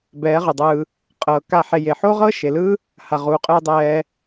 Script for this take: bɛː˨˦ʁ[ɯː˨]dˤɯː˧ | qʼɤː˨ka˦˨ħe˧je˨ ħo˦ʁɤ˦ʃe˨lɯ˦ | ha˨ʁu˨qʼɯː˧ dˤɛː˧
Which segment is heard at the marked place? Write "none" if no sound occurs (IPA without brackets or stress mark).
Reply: ɯ˨